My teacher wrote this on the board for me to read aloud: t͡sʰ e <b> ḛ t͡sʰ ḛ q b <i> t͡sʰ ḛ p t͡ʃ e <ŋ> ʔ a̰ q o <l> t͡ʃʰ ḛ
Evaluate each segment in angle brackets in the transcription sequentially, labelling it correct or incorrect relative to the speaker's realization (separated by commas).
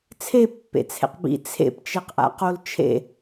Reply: incorrect, incorrect, incorrect, correct